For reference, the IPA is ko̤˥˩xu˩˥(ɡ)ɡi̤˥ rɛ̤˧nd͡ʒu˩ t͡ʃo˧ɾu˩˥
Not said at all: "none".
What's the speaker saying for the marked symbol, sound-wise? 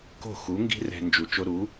ŋ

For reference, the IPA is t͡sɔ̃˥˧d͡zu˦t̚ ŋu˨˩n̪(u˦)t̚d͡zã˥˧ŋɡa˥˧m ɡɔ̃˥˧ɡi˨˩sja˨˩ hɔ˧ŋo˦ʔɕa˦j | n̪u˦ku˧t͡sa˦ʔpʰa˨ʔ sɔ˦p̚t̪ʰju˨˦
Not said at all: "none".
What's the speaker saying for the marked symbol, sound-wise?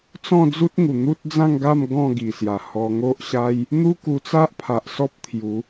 u˦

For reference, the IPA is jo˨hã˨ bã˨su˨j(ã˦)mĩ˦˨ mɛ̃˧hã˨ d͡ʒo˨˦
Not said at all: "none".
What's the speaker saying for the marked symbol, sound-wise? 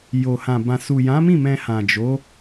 ã˨˦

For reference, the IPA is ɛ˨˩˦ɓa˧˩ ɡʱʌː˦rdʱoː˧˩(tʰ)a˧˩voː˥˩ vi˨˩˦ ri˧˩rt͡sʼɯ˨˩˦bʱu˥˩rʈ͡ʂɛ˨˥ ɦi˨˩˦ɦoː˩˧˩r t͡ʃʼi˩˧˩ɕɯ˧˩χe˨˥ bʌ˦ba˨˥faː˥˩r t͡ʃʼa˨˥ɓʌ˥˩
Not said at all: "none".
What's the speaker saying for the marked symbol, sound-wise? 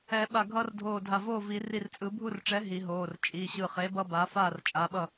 dʱ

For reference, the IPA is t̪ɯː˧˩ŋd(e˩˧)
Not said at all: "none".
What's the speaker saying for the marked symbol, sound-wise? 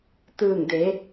e˩˧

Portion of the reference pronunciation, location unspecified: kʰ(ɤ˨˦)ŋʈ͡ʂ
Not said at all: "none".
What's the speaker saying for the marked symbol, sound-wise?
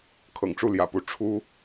ɤ̰˨˩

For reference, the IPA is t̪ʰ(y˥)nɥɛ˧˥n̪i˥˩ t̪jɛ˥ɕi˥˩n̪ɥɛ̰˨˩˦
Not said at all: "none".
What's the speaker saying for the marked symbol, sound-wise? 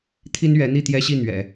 i˥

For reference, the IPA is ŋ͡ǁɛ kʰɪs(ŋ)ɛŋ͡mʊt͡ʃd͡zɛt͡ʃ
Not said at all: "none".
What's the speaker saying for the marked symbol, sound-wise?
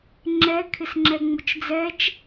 ŋ͡ǁ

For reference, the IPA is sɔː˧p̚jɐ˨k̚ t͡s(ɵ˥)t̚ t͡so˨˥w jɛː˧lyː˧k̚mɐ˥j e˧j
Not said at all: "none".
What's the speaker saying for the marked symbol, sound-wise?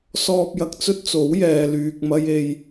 ɵ˥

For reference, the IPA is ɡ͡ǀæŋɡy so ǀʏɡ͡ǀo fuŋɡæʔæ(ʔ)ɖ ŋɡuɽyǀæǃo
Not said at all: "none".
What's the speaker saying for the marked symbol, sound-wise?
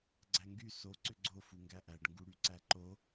none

